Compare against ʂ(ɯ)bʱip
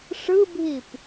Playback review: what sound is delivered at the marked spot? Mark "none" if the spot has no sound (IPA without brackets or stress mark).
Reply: ɯ